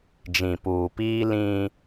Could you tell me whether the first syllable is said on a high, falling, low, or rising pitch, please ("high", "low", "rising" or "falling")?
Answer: low